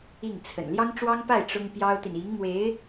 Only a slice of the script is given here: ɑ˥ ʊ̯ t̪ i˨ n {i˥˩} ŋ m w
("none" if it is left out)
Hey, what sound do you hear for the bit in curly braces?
i˧˥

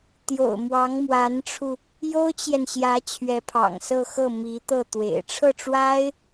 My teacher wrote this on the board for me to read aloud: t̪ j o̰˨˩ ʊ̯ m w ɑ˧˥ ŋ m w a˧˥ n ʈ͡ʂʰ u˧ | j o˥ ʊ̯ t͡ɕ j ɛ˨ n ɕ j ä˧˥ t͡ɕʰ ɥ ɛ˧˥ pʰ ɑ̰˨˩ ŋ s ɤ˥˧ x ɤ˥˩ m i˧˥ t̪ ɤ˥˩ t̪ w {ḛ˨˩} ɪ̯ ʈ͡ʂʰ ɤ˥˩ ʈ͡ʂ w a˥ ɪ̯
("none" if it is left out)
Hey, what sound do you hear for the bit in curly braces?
ḛ˨˩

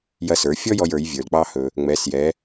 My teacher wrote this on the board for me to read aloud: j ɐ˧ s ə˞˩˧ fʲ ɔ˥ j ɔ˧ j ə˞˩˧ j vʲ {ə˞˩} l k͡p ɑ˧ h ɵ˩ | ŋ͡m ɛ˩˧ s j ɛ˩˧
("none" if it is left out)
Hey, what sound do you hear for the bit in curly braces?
ə˞˩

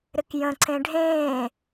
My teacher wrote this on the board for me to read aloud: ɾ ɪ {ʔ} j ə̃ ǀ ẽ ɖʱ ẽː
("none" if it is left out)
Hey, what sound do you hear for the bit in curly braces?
k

